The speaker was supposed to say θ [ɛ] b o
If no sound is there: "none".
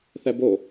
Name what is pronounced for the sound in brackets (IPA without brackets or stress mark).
ɛ